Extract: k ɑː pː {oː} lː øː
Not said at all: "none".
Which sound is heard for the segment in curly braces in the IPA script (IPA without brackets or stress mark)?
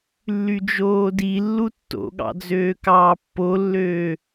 o